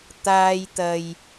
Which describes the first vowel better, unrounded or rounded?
unrounded